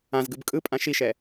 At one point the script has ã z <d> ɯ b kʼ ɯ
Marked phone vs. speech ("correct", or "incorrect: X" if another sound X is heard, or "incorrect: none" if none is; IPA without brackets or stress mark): incorrect: ɡ